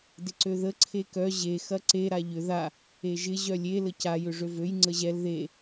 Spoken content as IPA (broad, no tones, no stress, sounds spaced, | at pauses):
d ɪ ǀ ø ð ə ǀʰ e k œ ʑ e x ɐ ǀ e ɾ a ʎ ʏ ð a | e ʒ ɪ ʑ œ lʲ e l ə c a j ʏ ʐ ø v ø j ŋ͡ǀ ə ʑ ɛ l ð e